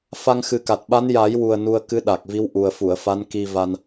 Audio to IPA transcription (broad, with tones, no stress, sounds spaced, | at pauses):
f a˧ ŋ x ɨ˨˩ k a˨˩ t̚ ɓ a˧˥ n j a˨˩˦ j w u˨˩ ə̯ n u˧ ə̯ k ɨ˧˥ ɗ a˨˩ k̚ v i˧˥ w ʔ u˨˩ ə̯ f u˨˩˨ ə̯ f a˧˥ n k i˧ v a˧ n